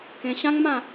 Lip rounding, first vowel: unrounded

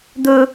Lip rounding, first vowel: rounded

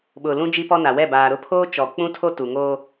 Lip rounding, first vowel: rounded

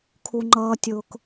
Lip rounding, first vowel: rounded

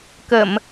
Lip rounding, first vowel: unrounded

